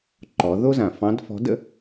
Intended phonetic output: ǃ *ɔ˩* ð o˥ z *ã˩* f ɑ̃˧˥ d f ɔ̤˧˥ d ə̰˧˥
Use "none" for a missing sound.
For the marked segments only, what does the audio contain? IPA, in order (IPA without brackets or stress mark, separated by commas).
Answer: ɔ˩˧, ã˩